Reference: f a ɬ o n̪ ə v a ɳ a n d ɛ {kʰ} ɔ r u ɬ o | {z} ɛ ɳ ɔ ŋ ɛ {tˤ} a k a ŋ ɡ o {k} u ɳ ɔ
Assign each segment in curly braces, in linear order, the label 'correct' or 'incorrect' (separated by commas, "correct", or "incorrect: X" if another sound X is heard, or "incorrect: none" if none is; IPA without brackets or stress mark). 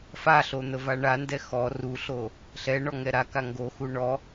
incorrect: x, incorrect: ɬ, incorrect: ɾ, incorrect: x